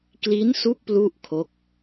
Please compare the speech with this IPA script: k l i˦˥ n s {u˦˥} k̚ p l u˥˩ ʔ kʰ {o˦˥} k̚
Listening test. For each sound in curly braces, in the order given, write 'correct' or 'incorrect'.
correct, correct

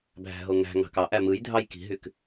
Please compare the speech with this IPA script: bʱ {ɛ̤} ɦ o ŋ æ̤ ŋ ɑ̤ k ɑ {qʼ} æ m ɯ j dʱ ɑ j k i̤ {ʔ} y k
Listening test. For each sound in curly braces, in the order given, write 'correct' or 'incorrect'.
incorrect, incorrect, incorrect

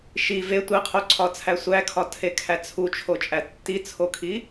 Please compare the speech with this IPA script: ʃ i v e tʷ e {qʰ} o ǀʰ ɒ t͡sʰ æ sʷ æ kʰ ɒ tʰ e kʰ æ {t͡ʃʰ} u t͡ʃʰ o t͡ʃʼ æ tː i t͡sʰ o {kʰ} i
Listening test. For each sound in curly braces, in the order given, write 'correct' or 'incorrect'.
correct, incorrect, correct

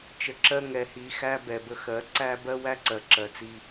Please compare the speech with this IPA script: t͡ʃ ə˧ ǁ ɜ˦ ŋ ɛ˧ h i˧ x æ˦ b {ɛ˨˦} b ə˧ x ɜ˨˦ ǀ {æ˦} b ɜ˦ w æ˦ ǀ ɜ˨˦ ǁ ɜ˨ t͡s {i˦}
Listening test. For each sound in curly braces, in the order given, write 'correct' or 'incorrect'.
incorrect, correct, incorrect

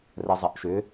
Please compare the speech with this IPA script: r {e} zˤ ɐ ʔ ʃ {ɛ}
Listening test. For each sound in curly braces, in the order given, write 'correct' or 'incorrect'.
incorrect, incorrect

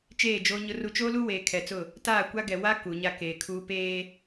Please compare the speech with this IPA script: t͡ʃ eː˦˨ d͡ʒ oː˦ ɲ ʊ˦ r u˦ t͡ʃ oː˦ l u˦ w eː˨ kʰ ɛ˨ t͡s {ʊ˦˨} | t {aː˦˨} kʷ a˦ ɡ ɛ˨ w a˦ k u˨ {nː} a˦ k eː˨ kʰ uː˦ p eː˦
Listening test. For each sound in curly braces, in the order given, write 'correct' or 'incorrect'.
correct, correct, incorrect

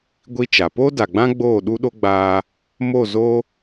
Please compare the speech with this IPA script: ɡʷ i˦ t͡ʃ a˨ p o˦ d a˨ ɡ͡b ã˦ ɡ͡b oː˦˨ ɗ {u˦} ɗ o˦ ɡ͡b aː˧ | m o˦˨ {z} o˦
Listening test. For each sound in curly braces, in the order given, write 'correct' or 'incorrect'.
correct, correct

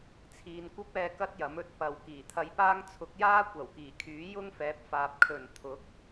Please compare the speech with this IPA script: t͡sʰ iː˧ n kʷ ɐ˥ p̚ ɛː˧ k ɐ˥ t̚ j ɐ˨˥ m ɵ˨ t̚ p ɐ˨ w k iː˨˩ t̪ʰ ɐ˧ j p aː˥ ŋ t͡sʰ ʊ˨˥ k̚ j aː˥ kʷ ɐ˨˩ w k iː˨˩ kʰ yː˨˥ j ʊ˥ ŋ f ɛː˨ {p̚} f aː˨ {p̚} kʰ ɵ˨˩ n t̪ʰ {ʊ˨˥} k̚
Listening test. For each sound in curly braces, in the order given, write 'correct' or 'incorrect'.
correct, correct, correct

